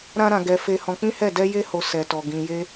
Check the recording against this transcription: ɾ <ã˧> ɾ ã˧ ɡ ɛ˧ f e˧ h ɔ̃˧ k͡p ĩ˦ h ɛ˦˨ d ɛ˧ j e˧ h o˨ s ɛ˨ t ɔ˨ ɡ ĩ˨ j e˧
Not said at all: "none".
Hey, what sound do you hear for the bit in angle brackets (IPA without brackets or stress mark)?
ã˦